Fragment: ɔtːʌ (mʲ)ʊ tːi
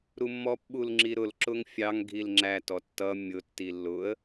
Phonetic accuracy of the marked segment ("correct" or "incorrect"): correct